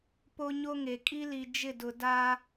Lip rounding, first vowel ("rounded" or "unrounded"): rounded